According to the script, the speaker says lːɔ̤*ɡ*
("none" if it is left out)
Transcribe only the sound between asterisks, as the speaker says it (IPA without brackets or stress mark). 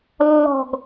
ɡ